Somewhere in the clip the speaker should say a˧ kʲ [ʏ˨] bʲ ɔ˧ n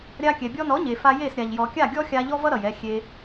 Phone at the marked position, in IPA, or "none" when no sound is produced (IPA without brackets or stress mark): ɛ˨